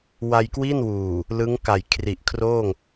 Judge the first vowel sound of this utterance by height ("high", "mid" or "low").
low